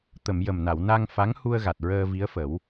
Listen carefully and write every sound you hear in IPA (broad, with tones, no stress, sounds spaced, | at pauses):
t̪ ə˨˩˨ m j ə˨˩ m n a˨˩˨ w n a˧ ŋ f a˧˥ ŋ h u˧ ə̯ ɣ a˨˩ t̚ ɹ əː˧ v i˧˥ ə̯ f ə˨˩˦ w